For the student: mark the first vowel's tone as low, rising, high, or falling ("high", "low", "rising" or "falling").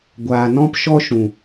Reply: low